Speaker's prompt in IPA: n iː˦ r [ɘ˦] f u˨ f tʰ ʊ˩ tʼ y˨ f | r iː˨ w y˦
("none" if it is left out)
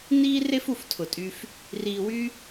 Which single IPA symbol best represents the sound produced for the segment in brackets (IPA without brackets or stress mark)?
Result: e˦